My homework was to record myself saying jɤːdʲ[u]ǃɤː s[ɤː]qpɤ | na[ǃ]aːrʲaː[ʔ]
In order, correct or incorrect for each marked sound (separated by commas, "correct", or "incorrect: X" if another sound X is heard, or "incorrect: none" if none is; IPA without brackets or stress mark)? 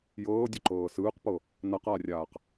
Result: incorrect: o, incorrect: ɯː, incorrect: q, incorrect: q